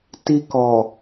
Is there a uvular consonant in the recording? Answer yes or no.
no